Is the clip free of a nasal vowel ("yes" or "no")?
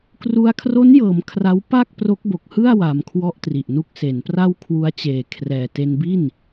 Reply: yes